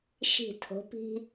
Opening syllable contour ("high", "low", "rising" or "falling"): falling